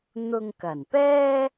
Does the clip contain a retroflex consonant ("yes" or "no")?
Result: no